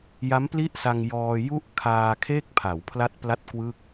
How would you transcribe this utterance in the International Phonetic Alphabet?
j a˦˥ m p l i˥˩ ʔ s a˧ ŋ j ɔː˧ j u˥˩ ʔ kʰ aː˧ kʰ e˥˩ k̚ pʰ a˩˦ w pʰ l a˦˥ t̚ p l a˦˥ t̚ k w ɯ˥˩ k̚

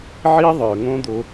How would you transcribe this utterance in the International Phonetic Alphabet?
ʕ i˦ ðˤ ə˞˨ ŋ õ˦ d̪ o˧

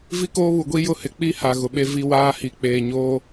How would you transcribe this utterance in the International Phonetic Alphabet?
v i˦ k oː˦ β u˨ ɡʷ i˦ j ʊ˦˨ h ɪ˨˦ k͡p i˦ h a˨ ɣ ʊ˨ ɓ e˦ v i˦ w aː˦ h i˨ k͡p eː˨ ɲ oː˦

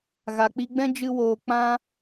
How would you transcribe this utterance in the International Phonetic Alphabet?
ɣ a˨ k͡p i˧ ɡ͡b ɛ̃˦ d͡ʒ ɨ˦ w oː˧ k͡p ã˦

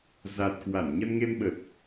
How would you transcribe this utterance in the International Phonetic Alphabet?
z a˨˩ t̚ k w a˧˩ n ɲ ə˧ n ŋ e˧ m ɓ ə˨˩ t̚

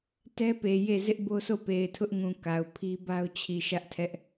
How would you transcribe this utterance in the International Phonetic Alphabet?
t ɛ˦ p e˨ j e˦˨ z ɪ˦ ʔ b o˦ s o˦˨ p e˨ ɪ̯ tʰ ʊ˦ ʔ ŋ ũ˨ k a˨ ʊ̯ pʰ i˦ b a˦ ʊ̯ t͡ɕʰ i˨ ʃ ä˦ ʔ tʰ ɛ˦ ʔ

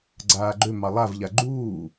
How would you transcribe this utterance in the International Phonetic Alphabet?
ɡ͡ǀ aː ɡ͡ǃ ø m ɑ lˠ a v ʎ a ɡ͡ǃ uː

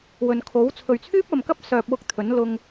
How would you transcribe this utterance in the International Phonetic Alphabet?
w ɵ˨ n kʰ o˨˥ w t͡sʰ ɵ˨ ɥ t͡sʰ yː˥ p̚ ɐ˨ m k ɐ˥ p̚ s œː˧ p̚ w ʊ˥ k̚ t̪ʰ ɵ˨˥ n l ʊ˧ ŋ

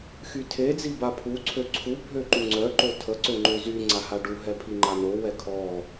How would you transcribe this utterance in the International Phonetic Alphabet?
x y tʰ e d͡z i b a pʰ u ǀʰ ø ǀʰ u bʱ ø ǃ u ŋ͡ǀ œ ǃ o tʰ ə ǀ ø ŋ͡ǃ ø z y ŋ͡ǀ a h a ɖ u ɦ ɛ pʰ i ŋ͡ǃ a n o w ɛ kʰ ɔ

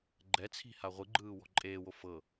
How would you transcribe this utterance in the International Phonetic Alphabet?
ɡ͡ǃ ɛ t͡sʰ i̤ h a ʁʷ ɯ ɡ͡ǃ ɯː w ɔ̤ ǃʼ eː w o f ɤ

